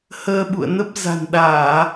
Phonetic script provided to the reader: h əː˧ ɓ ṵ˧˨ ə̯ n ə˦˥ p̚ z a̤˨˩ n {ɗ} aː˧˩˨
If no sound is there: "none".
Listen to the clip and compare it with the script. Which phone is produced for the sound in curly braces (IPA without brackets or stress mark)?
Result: ɗ